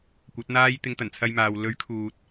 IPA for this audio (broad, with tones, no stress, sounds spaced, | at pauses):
kʷ ɐ˨˥ t̚ n̪ aː˥ j t̪ ɪ˧ ŋ t̪ ɐ˨˩ n t͡sʰ ɐ˧ j m aː˨ w l ɵ˨˥ ɥ kʰ uː˨ t̚